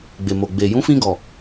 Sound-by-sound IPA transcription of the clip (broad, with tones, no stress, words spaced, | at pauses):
ɡ͡be˨mo˨ɡ͡be˨ jũ˨˦fĩ˧ɡɔ˨